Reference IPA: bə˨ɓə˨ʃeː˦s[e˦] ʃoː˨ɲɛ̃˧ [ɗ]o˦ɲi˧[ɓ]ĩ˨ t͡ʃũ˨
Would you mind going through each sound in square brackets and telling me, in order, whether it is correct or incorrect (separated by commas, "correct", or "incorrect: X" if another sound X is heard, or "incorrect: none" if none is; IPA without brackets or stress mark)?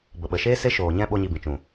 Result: correct, incorrect: ɓ, incorrect: b